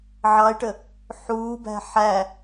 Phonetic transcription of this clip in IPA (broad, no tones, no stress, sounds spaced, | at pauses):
ʕ ɑ ɪ̯ ʈ ə | ħ uː b æ̤ ħ æ